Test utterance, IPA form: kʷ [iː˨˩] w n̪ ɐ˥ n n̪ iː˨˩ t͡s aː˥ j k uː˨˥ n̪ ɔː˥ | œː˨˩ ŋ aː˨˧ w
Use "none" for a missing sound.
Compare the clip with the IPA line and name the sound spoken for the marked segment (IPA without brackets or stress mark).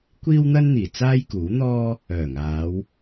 iː˥